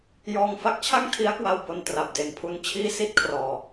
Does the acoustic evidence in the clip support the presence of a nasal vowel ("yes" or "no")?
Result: no